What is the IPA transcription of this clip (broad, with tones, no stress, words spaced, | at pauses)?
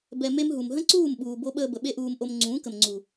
bɛ˨ me˦mɦu˨m ɦə̃˦ǀuː˦˨mɓuː˨ bo˦ ɓəː˧bə˨ ɓe˦ʔuː˧m ʔo˧m ŋ͡ǀũː˨˦kə˨mŋ͡ǀu˨